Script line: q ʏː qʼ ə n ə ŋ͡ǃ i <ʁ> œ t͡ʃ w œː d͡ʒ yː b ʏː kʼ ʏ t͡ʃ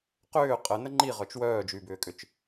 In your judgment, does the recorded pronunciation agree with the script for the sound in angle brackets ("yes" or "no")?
yes